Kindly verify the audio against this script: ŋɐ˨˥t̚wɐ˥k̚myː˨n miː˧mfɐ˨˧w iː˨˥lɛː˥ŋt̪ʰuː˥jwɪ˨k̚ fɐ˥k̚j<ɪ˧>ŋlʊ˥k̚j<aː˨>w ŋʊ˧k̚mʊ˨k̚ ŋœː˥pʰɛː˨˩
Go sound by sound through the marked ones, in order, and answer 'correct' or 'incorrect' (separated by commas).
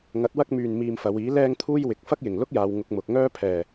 incorrect, correct